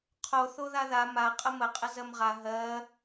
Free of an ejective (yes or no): no